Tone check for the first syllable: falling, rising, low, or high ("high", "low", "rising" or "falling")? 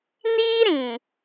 high